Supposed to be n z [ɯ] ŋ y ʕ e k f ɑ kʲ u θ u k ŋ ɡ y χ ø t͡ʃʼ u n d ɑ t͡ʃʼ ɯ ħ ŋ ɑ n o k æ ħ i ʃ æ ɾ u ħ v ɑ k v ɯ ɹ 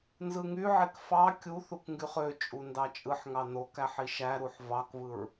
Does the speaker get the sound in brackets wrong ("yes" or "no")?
no